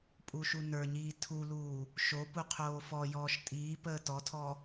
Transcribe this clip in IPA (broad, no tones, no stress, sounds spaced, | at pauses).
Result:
pʼ u ʃ u n ə˞ ɲ iː tʰ u l uː | ʃ o p u qʰ oː f ɔ j ɔː ʃ tʼ iː p əː t ɔ tʰ ɔ